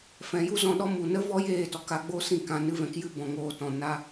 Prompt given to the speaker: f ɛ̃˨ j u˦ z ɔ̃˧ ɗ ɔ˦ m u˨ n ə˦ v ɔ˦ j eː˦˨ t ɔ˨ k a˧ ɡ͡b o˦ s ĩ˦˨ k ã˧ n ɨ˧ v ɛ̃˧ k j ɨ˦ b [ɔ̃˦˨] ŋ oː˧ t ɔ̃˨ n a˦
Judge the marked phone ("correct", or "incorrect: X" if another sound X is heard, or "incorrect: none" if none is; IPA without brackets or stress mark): incorrect: ɔ̃˨